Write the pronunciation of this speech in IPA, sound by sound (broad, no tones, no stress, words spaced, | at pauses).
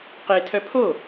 qetʰœ pʰo